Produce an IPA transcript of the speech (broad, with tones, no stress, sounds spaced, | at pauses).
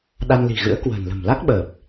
ɗ a˧ n l i̤˨˩ ɣ ɨ̰˧˥ ə̯ k w ə̤ː˨˩ n l ə̤˨˩ m l a˦˥ k̚ ɓ əː˨˩ p̚